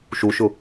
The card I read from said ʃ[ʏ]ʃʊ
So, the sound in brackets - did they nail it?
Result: no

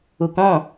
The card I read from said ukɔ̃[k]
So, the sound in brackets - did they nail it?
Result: no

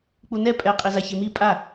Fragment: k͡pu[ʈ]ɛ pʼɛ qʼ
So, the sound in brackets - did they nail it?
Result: no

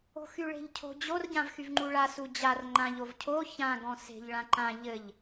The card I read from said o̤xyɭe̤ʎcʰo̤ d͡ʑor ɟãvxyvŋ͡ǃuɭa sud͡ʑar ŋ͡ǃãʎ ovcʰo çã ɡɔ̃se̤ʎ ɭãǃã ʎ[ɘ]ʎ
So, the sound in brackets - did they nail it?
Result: yes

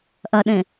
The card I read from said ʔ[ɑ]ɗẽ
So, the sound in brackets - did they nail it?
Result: no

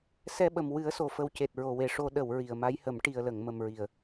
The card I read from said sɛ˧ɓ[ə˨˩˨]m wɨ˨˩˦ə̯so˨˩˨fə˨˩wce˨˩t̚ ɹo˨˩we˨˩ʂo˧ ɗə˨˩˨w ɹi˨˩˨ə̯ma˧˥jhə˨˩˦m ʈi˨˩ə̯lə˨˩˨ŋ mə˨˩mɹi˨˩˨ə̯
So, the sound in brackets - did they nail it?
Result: no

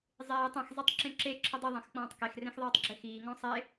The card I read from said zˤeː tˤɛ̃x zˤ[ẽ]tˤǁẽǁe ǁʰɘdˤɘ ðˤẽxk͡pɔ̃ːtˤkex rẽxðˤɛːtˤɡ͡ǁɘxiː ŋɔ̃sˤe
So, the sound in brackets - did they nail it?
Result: no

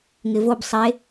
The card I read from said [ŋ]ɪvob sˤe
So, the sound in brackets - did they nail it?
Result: yes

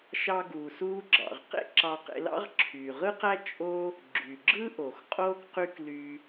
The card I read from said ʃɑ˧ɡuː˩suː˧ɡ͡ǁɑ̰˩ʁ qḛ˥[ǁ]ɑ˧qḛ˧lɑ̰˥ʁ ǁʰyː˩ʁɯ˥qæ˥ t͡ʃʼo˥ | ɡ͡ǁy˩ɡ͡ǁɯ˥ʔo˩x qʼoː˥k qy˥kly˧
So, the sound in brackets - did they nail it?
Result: yes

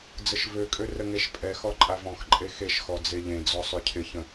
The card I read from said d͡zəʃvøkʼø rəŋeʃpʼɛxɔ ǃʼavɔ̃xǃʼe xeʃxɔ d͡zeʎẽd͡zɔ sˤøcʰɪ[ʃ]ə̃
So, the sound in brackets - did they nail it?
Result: no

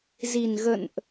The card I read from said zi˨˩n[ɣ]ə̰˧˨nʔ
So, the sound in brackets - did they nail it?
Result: yes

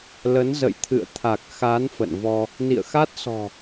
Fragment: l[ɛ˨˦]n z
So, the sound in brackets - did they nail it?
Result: no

